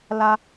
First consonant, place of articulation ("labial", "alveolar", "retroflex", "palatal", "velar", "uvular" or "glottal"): alveolar